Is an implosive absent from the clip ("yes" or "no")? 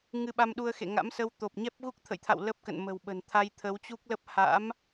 no